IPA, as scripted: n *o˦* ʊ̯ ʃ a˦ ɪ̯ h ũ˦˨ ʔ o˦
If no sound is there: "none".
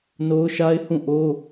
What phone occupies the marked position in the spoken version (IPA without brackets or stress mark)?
o˦